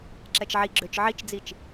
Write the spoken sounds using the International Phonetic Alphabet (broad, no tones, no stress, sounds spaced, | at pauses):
ǁ ɛ t͡ʃ ʕ i ɡ͡ǁ ø t͡ʃ ʕ i t͡ʃ d͡z i t͡ʃ